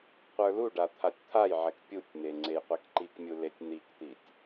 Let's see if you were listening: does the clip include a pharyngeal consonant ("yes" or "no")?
yes